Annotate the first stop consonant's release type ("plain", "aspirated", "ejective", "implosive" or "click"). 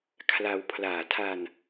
aspirated